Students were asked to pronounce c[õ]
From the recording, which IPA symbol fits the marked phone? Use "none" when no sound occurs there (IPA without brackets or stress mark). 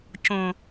õ